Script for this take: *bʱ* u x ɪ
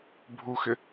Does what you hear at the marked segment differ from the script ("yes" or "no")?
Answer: no